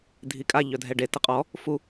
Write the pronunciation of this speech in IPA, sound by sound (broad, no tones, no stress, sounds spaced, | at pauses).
dʱ i kʼ a ʎ œ dʱ ɛ ɖ e t ə qʼ ɔ | f u